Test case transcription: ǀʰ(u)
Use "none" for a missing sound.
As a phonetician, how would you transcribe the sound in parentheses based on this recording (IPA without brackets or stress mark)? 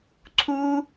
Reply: u